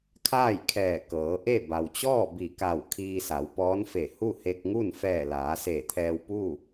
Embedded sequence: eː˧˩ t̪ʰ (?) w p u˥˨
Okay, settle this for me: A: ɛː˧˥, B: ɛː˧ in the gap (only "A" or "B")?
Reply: B